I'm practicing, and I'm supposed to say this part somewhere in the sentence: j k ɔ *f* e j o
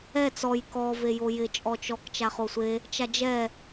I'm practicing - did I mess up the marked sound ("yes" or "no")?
yes